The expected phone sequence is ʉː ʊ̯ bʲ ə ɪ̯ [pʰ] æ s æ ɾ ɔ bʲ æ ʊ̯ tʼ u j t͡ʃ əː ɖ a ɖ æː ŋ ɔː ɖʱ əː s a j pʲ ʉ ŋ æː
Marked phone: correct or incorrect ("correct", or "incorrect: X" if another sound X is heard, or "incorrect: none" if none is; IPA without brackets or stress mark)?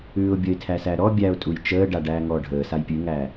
incorrect: tʰ